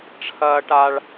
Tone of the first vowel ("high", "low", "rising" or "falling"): high